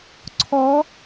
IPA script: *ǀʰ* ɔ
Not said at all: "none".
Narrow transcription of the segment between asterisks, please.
ǀʰ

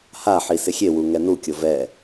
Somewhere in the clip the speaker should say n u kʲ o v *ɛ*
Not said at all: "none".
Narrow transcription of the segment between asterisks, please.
ɛ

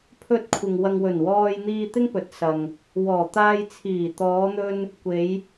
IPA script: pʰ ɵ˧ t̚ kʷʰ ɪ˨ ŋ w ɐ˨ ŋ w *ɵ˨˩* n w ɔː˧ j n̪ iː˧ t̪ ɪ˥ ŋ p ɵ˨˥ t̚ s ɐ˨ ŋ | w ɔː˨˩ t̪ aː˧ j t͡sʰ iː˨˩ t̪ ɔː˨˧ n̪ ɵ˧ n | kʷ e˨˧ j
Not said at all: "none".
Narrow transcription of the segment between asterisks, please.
ɵ˨˩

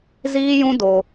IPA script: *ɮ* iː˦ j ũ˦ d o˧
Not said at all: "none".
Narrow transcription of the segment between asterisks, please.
z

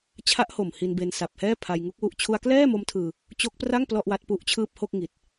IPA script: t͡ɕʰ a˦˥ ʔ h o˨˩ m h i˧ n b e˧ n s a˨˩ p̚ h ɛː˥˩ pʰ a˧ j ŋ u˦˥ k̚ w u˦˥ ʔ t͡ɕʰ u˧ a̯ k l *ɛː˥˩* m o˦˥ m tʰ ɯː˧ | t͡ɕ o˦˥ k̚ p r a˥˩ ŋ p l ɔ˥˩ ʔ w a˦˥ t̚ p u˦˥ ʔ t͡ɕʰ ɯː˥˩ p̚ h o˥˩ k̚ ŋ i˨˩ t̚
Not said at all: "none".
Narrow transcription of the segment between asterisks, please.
ɛː˥˩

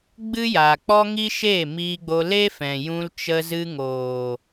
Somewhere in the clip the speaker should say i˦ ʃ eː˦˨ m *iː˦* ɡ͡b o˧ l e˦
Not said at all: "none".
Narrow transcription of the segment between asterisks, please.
iː˧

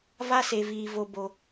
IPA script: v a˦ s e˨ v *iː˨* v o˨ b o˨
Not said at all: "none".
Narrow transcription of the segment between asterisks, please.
iː˨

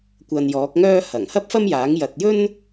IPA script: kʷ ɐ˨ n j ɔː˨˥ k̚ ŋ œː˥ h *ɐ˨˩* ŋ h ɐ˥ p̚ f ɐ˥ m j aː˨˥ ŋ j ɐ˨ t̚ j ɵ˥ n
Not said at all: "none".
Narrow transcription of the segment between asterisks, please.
ɐ˨˩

